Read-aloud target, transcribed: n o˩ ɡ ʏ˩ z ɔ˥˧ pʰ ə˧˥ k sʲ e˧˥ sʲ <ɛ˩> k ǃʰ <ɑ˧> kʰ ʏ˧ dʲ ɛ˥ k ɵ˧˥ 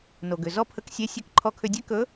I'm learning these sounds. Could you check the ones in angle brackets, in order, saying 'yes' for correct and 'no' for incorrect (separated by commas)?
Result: no, no